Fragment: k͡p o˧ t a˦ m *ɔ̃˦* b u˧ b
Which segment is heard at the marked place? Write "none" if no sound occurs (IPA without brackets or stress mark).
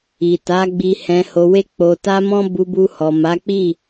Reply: ɔ̃˦